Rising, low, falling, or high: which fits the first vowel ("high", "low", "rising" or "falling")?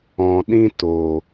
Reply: low